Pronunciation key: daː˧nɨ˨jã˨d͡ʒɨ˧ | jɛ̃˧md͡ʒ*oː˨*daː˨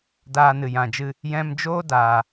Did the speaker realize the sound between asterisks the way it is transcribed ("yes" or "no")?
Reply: no